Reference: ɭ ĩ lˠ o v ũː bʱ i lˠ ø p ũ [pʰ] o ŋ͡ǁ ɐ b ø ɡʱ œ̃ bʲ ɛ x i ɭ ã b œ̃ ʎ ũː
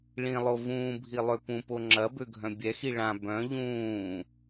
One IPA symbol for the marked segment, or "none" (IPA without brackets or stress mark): p